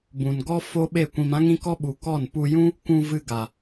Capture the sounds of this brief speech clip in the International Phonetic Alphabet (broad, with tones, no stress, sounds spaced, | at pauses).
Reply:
b ũ˨ n ɡ ɔ˦ f o˦ ɓ e˦˨ kʷ ĩ˧ m ã˦ ŋ ĩ˦ k ɔ˦ ɓ u˨ k ɔ˦˨ n p u˧ j ũ˦ | kʷ ũ˧ v ɨ˧ ɡ a˨